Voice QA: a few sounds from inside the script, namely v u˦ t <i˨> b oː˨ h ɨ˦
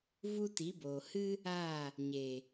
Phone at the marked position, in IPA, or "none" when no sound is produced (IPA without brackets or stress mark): i˨˦